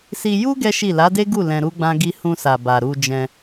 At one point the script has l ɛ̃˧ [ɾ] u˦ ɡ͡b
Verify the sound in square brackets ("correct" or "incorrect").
correct